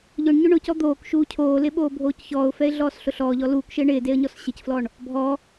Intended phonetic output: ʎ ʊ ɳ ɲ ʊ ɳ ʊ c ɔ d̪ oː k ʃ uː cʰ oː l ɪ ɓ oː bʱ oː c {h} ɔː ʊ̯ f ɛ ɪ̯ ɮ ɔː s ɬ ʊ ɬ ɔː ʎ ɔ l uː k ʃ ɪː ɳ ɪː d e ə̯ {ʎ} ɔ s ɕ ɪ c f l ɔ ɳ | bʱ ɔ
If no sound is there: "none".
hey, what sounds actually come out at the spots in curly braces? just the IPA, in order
ç, ɲ

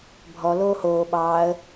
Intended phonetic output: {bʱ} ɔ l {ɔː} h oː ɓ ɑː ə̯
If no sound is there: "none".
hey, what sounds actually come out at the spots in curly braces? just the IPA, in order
bʱ, oː

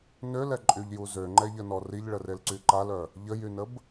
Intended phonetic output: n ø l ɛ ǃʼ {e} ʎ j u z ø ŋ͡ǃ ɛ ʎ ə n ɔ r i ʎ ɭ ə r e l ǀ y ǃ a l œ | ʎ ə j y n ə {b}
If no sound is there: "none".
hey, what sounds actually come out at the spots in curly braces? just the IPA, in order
y, b

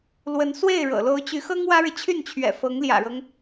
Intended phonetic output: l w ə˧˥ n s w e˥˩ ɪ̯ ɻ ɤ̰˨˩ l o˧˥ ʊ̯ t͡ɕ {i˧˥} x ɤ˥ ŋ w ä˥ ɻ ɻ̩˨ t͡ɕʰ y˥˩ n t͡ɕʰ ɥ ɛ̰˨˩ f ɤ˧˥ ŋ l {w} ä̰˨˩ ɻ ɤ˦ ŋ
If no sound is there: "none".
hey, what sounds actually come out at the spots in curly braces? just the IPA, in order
y˧˥, j

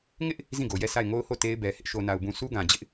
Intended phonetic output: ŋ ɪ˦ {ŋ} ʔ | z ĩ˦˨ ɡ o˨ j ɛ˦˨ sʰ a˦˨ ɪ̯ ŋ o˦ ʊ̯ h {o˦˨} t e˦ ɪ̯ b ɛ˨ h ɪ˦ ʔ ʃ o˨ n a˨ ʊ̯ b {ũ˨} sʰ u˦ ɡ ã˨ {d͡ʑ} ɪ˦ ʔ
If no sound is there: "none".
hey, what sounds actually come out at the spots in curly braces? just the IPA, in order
none, o˦˨, ũ˨, d͡ʑ

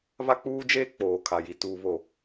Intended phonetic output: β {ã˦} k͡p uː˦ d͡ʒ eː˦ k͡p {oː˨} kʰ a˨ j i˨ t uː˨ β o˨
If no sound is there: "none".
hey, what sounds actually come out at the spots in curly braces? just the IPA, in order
a˦, oː˨

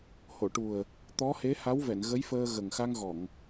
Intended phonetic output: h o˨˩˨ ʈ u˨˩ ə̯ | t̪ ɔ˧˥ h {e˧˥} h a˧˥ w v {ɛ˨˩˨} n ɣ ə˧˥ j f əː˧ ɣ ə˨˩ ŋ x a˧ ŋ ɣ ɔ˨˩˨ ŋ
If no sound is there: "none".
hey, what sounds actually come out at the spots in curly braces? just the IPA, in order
e˧˥, ɛ˨˩˨

